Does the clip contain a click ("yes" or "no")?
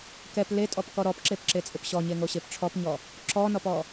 yes